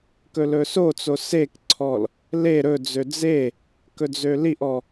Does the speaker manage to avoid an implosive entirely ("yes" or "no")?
yes